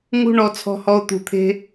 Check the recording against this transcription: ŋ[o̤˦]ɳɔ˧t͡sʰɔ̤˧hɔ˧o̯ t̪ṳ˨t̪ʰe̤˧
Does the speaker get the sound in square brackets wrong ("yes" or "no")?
yes